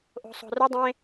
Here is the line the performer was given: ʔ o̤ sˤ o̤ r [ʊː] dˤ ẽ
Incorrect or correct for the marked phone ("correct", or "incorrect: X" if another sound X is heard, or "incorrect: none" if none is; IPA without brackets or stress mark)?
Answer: incorrect: ʊ